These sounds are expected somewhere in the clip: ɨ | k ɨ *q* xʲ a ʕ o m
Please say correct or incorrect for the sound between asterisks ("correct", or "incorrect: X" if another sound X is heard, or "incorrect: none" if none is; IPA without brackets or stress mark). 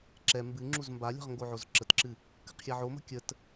correct